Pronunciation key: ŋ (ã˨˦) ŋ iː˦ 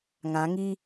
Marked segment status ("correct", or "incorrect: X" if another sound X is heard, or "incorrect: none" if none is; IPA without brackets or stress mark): correct